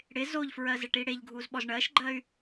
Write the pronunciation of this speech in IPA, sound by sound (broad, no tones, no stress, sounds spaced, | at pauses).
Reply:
ɽ ɪ z o ʎ f ɹ ɜ z ɪ ʈ i ɽ e ʎ ɡʱ u z ɓ ɔ z ɳ ɜ ʃ ɡ͡ǃ ɜ y̯